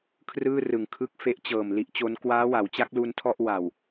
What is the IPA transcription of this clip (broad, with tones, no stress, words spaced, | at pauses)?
kʰrɯː˥˩ rɯ˨˩ŋkʰɯ˥˩k̚ fe˦˥ʔt͡ɕɤː˨˩m li˦˥ʔt͡ɕo˦˥n kwaː˦˥wa˩˦wt͡ɕa˦˥k̚ lu˧ntʰɔ˥˩ʔ wa˨˩w